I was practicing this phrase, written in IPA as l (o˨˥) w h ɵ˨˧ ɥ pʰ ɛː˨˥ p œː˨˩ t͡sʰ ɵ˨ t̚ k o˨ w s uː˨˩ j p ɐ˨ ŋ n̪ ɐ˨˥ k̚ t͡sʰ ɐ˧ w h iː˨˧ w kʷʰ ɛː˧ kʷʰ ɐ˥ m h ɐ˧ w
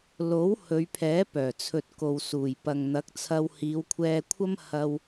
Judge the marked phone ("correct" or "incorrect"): correct